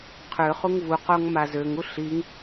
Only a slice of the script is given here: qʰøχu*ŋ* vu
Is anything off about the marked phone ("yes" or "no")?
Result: no